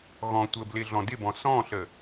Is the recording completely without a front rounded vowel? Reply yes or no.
yes